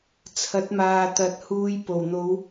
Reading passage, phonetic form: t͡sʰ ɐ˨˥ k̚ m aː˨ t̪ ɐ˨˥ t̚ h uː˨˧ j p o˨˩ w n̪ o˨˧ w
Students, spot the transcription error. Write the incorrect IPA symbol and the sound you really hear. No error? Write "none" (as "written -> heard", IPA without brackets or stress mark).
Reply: k̚ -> t̚